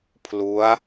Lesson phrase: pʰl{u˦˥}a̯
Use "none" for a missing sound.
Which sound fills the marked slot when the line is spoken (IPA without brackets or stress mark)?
u˦˥